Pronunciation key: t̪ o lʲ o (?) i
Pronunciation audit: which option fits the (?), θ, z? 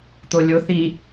θ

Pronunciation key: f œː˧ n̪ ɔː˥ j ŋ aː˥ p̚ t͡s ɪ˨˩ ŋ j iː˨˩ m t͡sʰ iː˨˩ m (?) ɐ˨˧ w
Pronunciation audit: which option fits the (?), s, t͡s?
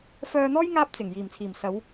s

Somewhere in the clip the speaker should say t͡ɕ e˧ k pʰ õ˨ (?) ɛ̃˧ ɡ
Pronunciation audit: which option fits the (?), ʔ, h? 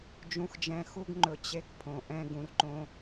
ʔ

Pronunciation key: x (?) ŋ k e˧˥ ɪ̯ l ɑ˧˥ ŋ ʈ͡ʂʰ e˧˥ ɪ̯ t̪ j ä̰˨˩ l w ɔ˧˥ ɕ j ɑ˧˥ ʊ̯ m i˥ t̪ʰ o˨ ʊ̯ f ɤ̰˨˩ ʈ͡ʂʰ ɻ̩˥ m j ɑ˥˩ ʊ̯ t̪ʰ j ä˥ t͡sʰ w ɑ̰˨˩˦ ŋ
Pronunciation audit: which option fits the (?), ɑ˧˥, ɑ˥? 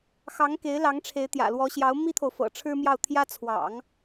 ɑ˧˥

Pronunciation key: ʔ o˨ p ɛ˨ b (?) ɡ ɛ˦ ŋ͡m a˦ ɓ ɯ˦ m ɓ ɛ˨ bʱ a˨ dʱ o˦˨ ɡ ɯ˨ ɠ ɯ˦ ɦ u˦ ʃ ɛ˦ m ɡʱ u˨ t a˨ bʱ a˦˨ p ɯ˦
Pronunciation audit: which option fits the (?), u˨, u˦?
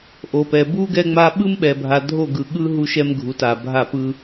u˦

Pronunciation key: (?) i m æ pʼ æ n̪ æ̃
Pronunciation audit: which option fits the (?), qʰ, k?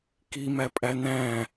k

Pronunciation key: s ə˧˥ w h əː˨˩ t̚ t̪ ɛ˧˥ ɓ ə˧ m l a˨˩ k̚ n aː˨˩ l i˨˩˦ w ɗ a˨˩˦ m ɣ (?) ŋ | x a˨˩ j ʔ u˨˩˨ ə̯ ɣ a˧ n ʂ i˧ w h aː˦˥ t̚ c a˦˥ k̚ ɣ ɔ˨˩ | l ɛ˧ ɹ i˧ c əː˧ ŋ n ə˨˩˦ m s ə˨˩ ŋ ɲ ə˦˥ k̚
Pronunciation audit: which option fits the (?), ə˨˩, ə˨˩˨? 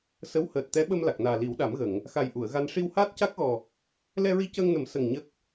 ə˨˩˨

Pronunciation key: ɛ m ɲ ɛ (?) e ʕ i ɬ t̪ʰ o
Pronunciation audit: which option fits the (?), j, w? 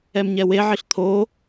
w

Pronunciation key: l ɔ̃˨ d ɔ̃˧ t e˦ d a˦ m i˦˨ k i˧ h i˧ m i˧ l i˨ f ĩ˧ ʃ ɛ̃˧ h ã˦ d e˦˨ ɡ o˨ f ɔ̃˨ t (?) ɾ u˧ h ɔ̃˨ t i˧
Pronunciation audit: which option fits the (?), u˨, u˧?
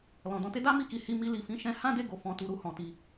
u˨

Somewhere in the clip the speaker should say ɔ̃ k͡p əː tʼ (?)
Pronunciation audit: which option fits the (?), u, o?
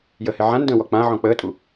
u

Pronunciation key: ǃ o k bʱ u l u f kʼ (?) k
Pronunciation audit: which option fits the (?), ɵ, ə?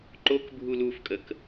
ə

